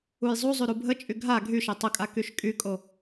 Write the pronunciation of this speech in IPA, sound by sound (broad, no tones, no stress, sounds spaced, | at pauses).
u j zˤ u zˤ y ɾ u bʱ ə t͡ʃʼ y ɡʱ a ɡʱ y ʃ e tˤ ə kʼ a k y ʃ kʼ y kʼ o